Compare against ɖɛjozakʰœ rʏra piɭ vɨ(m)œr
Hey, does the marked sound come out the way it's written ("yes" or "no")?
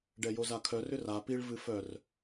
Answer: no